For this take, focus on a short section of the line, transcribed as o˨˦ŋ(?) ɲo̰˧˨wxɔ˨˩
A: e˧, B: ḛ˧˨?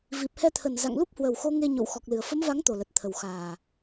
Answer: A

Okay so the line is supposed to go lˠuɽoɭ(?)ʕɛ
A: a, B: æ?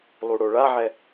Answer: A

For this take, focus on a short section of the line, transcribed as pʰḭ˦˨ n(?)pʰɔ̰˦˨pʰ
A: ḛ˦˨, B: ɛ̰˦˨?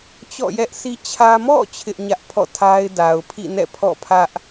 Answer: B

